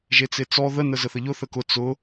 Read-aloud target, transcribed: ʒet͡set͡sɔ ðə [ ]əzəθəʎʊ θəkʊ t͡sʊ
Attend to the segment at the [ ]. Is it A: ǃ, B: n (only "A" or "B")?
B